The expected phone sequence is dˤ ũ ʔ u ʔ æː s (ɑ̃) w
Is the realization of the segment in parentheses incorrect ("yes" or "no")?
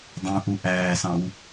no